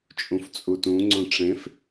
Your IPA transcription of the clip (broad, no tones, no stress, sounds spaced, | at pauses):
t͡ʃʼ ũ f t͡sʼ u t ũ ŋ͡ǀ õ ʈ͡ʂ ẽ f